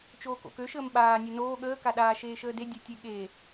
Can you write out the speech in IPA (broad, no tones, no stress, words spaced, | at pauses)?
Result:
t͡ʃoːko̰kø ʃəːmɓaː nʲønoː ɠəː kaɗaː ʃeːʃəːde dʲetʲeɠe